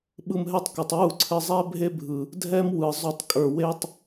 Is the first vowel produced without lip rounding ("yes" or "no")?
yes